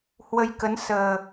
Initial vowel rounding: unrounded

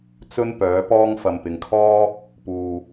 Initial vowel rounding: rounded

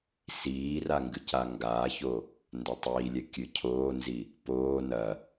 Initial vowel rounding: unrounded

